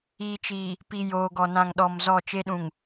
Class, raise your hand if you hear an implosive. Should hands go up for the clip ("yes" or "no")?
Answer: yes